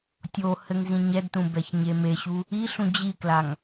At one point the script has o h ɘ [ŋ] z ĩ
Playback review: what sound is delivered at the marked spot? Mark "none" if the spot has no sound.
ŋ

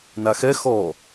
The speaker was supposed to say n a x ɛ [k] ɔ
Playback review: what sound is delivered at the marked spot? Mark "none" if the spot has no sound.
x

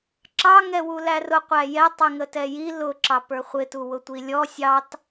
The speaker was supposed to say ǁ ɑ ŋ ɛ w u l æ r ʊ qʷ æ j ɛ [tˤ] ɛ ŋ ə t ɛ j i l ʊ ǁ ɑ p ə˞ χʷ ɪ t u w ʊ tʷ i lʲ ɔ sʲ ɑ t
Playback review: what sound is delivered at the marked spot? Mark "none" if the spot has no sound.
tˤ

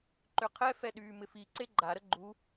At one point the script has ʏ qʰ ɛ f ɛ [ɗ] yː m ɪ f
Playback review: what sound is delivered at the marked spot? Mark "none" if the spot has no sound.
ɗ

